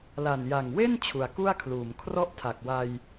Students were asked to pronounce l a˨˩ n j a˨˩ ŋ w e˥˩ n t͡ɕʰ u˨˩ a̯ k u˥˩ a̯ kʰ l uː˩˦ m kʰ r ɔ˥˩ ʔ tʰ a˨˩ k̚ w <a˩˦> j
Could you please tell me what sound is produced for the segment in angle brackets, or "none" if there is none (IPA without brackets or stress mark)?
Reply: a˧